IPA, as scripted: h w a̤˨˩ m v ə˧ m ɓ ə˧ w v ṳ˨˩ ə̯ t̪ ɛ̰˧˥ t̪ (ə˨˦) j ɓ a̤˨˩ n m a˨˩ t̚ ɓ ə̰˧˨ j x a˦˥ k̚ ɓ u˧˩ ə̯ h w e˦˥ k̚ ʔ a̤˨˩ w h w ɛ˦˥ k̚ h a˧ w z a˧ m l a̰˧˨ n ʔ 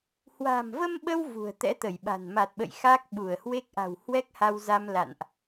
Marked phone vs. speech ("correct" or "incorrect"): incorrect